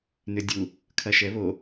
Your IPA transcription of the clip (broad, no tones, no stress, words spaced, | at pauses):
nʏdʲu | kʰɐʃɛβo